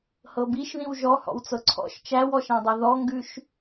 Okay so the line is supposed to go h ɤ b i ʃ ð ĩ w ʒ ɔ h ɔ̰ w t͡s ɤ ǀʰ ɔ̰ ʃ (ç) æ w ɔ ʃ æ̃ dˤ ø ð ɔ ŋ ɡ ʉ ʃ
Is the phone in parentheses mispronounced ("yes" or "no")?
yes